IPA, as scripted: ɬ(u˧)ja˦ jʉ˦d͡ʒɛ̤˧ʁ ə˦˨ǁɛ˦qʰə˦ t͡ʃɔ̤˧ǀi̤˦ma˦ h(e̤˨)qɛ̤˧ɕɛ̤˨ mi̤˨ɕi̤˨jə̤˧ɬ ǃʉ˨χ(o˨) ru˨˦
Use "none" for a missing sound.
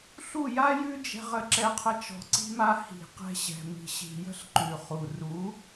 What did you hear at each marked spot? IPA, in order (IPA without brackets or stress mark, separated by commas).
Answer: u˦˨, i̤˨, u˨